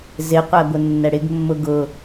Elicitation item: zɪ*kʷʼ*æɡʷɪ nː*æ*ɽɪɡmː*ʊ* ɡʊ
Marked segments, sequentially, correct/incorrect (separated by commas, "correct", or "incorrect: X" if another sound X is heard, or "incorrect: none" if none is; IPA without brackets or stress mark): incorrect: qʷ, incorrect: ɛ, correct